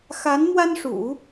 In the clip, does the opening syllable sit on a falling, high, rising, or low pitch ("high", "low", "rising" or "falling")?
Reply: rising